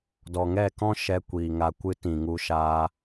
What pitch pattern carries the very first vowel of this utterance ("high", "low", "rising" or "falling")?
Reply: low